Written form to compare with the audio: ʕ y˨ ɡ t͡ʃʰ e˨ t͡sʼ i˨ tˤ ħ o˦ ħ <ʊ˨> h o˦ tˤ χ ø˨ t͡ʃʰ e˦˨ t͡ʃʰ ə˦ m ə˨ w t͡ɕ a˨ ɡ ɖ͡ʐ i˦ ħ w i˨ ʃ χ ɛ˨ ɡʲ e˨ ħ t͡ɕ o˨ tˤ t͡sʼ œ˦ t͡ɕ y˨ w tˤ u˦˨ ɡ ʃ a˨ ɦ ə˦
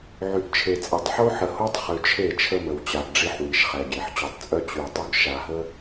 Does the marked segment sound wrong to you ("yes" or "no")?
yes